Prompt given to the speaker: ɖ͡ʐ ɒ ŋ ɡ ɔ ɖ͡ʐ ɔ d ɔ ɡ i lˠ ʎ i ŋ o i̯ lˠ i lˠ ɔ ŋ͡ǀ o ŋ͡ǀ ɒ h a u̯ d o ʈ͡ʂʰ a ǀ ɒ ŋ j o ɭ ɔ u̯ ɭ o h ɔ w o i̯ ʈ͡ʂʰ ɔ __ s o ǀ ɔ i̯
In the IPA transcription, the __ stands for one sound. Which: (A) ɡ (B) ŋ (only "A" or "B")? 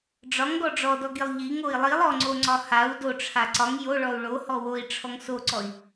B